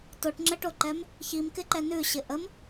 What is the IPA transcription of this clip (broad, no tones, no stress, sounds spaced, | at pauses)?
t o ʈ ŋ͡ǁ ə ʈ o ǃ ɛ m | ç i m k ɪ ǃ ɛ n ʉ ɕ ɪ ʔ ə m